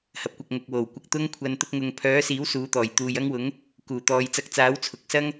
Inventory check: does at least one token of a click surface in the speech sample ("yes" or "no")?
no